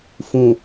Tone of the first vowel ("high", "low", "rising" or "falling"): low